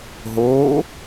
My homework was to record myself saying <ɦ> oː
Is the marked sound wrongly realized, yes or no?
no